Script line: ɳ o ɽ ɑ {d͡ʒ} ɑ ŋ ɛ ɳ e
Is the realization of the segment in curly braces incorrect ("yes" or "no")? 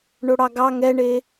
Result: yes